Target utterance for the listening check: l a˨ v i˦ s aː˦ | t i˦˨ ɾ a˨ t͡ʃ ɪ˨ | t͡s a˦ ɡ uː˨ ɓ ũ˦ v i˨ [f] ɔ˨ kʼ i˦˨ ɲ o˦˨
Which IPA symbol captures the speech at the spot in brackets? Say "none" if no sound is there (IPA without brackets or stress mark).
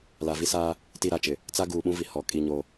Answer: h